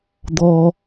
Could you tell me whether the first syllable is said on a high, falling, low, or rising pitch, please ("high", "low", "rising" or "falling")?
low